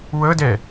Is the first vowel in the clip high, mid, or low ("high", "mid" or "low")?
mid